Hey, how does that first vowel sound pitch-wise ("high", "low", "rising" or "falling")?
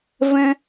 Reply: high